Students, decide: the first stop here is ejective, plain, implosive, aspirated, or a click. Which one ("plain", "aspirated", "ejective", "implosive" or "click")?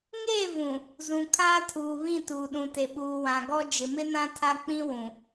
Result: aspirated